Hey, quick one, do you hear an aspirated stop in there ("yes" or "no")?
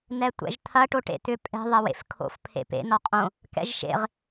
yes